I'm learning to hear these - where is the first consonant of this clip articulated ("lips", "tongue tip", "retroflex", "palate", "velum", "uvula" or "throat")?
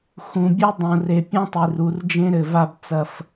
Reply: velum